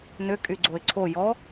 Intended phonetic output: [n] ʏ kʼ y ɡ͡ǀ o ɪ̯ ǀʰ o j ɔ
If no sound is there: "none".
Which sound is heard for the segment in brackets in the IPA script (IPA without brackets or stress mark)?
n